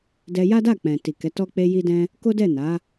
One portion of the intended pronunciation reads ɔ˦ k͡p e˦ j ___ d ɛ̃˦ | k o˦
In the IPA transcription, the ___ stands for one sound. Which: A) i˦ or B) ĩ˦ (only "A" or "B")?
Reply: A